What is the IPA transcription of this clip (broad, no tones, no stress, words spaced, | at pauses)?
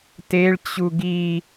teɭ t͡ɕuɡi